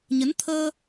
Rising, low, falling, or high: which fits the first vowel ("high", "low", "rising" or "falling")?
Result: rising